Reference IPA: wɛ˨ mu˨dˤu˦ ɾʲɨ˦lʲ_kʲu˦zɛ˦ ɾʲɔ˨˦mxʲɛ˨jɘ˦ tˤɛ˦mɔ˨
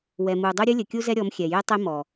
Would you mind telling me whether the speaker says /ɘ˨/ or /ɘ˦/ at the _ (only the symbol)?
ɘ˨